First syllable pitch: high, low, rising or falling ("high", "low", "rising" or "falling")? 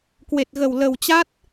low